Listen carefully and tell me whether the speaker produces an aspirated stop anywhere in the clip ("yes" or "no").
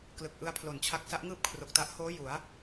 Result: yes